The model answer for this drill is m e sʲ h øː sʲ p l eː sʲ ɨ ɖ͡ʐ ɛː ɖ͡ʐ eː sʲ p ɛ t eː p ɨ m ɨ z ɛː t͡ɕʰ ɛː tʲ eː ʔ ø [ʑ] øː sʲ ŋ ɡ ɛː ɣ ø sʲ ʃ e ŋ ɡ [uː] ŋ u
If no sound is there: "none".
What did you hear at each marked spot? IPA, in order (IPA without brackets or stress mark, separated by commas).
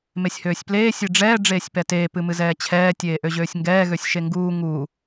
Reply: ʑ, uː